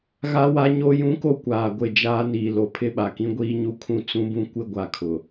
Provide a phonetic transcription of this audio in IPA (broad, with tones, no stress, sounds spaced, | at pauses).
ɣ a˦ w a˦ ɲ o˦ j ũ˦ k o˦ kʷ aː˨ ɡʷ ɪ˦˨ d͡ʒ aː˦ n iː˨ l o˨ pʰ ɪ˦ ɓ a˨ k ĩ˦ ɡʷ iː˦ ɲ u˦ kʰ ũ˦ t͡s ũ˦ b ũ˦ kʷ ɪ˦ ɡʷ a˦ kʰ ʊ˨